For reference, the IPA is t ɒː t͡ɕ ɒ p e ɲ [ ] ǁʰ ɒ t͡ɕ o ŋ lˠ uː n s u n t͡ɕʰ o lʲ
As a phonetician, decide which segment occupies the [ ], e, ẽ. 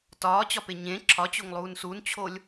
ẽ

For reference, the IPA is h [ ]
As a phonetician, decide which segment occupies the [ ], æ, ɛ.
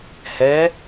ɛ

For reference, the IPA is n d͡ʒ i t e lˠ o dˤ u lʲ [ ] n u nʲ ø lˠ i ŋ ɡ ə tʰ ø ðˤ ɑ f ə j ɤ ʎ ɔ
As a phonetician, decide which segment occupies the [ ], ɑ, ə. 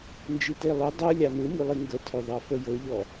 ɑ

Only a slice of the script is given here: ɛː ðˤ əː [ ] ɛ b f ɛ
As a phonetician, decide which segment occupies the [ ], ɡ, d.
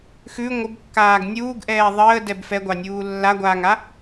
d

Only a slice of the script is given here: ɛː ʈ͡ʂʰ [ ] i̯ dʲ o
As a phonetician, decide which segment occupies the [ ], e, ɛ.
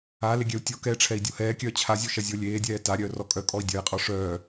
ɛ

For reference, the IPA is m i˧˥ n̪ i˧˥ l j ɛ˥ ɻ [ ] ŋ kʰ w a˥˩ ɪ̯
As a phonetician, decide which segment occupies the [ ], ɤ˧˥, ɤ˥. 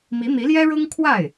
ɤ˥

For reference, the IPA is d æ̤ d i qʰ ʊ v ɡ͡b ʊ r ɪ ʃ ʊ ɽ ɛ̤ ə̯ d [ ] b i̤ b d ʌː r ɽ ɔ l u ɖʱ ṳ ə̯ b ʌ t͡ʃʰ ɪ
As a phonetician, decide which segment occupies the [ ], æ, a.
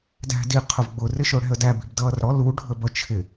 æ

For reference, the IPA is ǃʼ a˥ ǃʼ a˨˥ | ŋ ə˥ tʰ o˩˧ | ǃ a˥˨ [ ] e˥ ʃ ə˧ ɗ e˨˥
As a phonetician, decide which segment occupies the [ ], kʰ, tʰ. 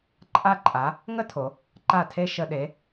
tʰ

